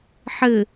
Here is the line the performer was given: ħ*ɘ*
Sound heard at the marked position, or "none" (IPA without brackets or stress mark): ɘ